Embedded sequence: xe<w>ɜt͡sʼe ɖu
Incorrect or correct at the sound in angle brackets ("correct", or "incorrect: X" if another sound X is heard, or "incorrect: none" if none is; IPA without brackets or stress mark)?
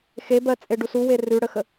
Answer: incorrect: b